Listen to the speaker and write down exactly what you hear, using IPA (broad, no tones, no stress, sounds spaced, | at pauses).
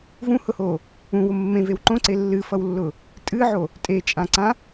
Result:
v ũ h ʊ h o | ũ w ʊ mː ẽ v e w ǃ õ ǀ e lː ɨ f ʌ w lː ʊ | tʼ ɨ ʕ o | tʼ e t͡ʃʼ ã ǀ ã